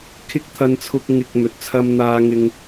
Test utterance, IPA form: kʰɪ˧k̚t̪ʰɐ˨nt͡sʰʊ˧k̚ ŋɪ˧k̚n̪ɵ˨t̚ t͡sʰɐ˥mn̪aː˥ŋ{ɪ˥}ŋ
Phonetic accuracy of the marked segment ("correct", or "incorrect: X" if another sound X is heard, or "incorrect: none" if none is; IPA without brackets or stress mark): correct